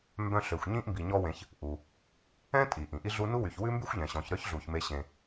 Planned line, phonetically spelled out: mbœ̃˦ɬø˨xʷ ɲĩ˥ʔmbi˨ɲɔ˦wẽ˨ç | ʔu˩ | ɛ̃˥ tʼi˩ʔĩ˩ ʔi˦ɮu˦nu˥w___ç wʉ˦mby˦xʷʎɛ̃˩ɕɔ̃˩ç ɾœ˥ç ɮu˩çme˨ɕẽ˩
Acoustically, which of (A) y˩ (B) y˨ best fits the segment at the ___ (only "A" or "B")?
A